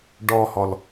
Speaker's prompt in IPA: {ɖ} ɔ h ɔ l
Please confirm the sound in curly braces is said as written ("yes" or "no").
yes